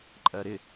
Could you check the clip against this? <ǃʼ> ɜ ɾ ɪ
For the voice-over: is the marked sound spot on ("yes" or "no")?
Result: yes